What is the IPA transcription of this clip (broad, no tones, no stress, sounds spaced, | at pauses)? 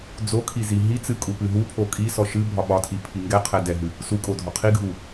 d͡z o kʰ i z i ɦ i t͡s ɨ kʼ u p ɨ ɦ u pʰ o kʼ i s ɔ ʃ ɨ bʱ ɒ ɓ ɒ tʰ i pʰ i ŋ ɡ ɛ qʰ ɛ d ɛ ɦ ɨ | s u kʼ o dʱ ɒ qʰ i ɡʱ u